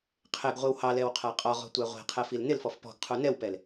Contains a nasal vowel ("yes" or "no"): no